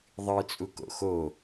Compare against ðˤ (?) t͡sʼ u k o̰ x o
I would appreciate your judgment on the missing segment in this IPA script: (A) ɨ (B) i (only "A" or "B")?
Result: A